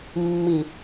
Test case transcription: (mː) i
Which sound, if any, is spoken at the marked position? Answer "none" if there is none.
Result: mː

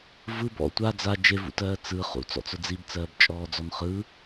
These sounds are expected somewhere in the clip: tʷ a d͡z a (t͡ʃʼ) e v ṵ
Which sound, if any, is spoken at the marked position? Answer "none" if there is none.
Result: d͡ʒ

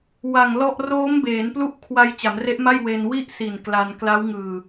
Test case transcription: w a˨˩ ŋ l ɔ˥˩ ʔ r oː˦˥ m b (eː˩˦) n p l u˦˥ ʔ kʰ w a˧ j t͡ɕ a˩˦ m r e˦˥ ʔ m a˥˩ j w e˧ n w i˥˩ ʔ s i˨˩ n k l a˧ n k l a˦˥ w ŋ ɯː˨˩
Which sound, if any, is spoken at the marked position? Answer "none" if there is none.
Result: eː˩˦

